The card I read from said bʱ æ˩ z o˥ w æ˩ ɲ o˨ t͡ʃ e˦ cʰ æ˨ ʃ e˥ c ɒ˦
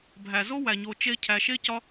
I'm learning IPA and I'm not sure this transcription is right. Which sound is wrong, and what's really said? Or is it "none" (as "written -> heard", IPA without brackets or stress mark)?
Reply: none